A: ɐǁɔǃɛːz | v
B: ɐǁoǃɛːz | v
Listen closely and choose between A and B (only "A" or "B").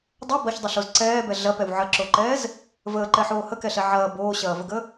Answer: B